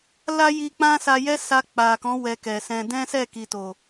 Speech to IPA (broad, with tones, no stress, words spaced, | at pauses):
la˦ ji˧k͡pã˦sa˧ jɛ˦sa˧k͡pa˨kɔ̃˨˦ wɛ˧kɛ˨sɛ̃˧ dɛ̃˦sɛ˦˨ki˨to˨